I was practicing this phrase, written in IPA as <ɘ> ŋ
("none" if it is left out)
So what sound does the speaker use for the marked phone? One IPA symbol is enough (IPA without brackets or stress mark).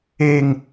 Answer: e